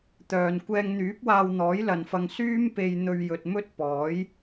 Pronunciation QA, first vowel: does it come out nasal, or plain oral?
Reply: oral